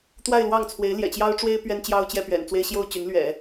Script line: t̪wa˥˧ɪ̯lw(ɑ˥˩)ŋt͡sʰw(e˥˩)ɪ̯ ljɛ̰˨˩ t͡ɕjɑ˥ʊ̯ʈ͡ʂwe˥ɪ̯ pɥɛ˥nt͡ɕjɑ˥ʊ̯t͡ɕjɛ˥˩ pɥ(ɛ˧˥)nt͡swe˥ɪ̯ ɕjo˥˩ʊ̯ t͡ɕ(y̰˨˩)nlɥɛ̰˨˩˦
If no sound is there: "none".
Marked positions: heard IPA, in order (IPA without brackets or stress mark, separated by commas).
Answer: ɑ˥˩, e˧˥, ɛ̰˨˩, y˧˥